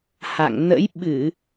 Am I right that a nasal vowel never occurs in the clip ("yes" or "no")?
yes